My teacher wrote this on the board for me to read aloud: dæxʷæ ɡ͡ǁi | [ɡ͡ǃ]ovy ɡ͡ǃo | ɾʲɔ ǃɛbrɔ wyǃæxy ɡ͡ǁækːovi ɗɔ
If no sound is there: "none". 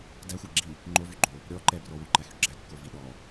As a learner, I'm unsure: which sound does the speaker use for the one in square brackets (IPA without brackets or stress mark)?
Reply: ŋ͡ǃ